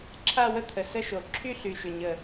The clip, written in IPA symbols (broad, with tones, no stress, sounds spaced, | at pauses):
ǁʰ a˥˧ w ə˥˧ t̪ʰ ə˨˩ s ə˥˧ ʃ o˨˩ ǁʰ y˥˧ ɬ y˨˩ ʃ ʏ˨˩ ɲ ə˨˩